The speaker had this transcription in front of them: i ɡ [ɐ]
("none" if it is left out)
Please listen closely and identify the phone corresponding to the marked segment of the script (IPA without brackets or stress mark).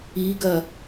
ɐ